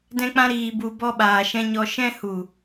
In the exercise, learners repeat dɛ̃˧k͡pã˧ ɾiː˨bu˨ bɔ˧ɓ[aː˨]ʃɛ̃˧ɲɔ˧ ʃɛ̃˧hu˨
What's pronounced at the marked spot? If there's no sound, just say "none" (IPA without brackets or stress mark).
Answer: aː˨